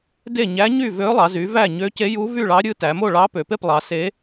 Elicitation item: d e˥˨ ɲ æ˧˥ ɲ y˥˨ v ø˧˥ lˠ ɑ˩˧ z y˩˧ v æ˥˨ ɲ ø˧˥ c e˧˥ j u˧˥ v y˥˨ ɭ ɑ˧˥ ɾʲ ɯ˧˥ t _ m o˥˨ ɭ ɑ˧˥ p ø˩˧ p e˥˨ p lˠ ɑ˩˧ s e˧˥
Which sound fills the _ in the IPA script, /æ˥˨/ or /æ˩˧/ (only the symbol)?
æ˩˧